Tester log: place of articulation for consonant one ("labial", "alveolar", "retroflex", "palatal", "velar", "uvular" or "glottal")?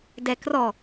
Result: alveolar